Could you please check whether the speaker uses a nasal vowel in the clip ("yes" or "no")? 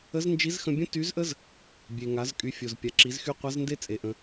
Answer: yes